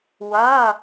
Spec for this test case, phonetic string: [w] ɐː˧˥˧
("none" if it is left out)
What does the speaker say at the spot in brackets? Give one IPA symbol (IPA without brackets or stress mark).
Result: w